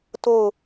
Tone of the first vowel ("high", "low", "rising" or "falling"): falling